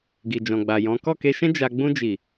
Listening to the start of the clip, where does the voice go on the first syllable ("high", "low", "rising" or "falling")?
low